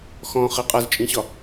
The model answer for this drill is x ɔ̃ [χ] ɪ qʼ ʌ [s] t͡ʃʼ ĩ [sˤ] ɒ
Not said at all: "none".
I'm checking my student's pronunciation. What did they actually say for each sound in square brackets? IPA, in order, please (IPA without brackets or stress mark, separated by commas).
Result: χ, z, ɕ